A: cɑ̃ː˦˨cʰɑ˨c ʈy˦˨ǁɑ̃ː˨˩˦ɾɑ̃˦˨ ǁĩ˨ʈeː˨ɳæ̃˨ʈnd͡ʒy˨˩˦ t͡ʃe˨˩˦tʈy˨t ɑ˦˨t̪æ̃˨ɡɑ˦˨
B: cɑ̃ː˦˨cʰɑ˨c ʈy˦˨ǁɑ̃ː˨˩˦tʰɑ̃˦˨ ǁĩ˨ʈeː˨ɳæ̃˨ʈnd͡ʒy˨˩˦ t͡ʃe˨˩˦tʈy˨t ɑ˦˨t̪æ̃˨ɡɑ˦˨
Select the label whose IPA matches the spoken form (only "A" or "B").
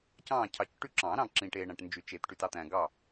A